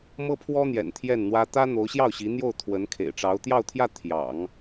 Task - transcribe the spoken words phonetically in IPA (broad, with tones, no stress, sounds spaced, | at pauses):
m ɤ˥ pʰ w ɔ˥ n̪ j ɛ̰˨˩ n t̪ʰ j ɛ˥˩ n n̪ w ä˥ t̪ ä˥ n̪ o˧˥ ʊ̯ ɕ j ɑ˥˩ ʊ̯ ɕ i˧˥ n̪ j o˥˩ ʊ̯ t̪ʰ w ə˧˥ n kʰ ḛ˨˩ ɪ̯ ʈ͡ʂ ɑ˧˥ ʊ̯ t̪ j ɑ˥˧ ʊ̯ t̪ʰ j ä˥˩ t̪ʰ j ɑ̰˨˩˦ ŋ